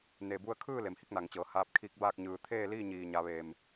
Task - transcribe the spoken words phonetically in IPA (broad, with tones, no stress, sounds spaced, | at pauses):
n e˩ b u˧ ə̯ kʰ ɯː˥˨ l e˩˧ m h i˧˥ k̚ n a˩ ŋ t͡ɕ ɤː˩˧ h aː˧ p̚ kʰ i˧ k̚ b aː˥˨ k̚ ɲ ɯː˩ t̪ʰ eː˥˨ l iː˥˨ ɲ iː˩ ɲ a˩˧ ʋ eː˩ m